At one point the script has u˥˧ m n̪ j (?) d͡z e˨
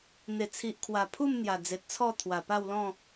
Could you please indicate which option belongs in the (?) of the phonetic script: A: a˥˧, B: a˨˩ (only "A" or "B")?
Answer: B